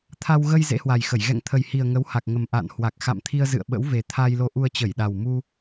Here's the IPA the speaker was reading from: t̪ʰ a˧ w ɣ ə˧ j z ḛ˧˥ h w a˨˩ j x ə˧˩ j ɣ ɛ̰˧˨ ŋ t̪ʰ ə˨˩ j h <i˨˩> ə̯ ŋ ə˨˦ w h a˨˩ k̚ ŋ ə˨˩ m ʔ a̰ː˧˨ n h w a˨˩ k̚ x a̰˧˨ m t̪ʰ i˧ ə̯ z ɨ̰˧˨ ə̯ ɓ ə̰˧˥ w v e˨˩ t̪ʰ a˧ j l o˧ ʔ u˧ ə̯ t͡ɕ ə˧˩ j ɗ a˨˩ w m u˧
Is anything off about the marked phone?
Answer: no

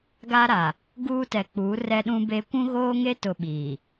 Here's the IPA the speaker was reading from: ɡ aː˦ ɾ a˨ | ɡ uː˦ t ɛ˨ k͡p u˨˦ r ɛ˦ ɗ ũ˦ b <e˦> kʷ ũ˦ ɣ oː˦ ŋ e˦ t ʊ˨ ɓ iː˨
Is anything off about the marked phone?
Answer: no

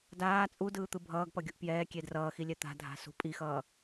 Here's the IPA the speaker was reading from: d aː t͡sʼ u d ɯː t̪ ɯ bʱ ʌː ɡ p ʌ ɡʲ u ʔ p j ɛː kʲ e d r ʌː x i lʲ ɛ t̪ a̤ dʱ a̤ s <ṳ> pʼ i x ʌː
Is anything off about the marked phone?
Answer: no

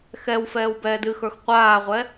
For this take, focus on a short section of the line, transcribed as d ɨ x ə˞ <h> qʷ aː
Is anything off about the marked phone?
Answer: yes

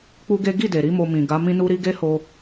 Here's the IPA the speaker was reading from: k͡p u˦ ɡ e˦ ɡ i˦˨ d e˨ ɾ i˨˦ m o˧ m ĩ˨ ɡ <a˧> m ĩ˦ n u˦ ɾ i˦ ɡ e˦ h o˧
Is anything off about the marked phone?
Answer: yes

